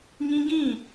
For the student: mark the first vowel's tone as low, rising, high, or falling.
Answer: high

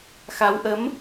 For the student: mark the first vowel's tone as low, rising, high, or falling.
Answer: rising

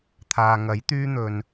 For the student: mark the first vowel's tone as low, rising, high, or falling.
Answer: low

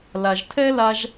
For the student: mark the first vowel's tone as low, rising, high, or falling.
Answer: low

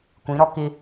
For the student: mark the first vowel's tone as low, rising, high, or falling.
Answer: rising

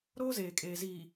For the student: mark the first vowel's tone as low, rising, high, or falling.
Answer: high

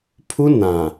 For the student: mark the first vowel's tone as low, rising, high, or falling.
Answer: high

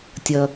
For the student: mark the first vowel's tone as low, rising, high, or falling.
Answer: low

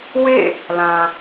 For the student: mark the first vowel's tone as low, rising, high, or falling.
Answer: falling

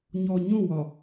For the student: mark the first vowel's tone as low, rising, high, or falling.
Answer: low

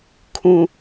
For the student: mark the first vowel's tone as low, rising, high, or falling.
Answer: low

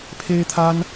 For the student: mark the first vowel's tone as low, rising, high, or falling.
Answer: high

